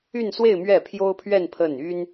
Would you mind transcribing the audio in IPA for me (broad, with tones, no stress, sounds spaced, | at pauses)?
y˥˧ n s w e˥˧ ɪ̯ m ɥ ɛ˥˩ pʰ j o˥ ʊ̯ pʰ ɥ ɛ˥˧ n pʰ ə˥˩ n y˥ n